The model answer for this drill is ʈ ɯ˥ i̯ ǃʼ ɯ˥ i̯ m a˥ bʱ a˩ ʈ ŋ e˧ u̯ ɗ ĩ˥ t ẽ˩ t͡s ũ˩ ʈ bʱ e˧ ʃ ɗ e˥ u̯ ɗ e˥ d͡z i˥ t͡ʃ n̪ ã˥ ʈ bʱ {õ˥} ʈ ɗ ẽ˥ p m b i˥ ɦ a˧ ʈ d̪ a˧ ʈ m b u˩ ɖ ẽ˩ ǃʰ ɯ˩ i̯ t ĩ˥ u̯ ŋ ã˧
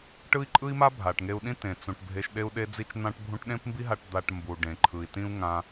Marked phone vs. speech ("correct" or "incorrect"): incorrect